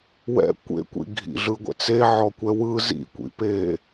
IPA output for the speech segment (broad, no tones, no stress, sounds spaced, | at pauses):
w ɛ̰ kʷ ḛ kʷ ḭ ɡʱ ḭ ɮ ɯ ɡʷ ɛ̰ t͡s e ʕ ɔ kʷ ɛ w ɯ z ḭ kʷ ḭ p e